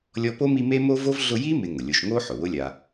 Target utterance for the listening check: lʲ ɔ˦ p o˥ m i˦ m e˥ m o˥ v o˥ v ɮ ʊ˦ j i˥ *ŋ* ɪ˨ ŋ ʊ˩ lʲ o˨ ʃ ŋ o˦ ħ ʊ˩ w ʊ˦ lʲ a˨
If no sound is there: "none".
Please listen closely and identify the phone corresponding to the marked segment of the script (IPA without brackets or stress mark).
m